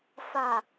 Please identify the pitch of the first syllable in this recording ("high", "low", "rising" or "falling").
low